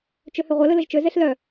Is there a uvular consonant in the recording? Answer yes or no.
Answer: yes